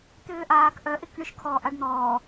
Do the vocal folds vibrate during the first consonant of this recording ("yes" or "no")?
no